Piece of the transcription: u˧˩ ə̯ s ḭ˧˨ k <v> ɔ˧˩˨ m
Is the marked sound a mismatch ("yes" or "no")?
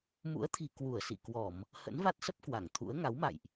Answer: yes